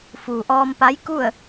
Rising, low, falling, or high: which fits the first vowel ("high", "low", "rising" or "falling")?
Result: low